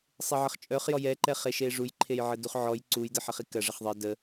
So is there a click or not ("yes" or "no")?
yes